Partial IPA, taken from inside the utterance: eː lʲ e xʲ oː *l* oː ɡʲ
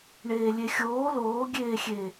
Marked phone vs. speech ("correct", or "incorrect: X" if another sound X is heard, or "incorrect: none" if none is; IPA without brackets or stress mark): correct